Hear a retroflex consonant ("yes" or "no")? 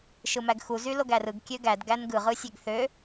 no